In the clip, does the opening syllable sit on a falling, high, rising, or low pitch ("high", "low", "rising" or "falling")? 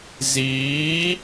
rising